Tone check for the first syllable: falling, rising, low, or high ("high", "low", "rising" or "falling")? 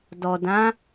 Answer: low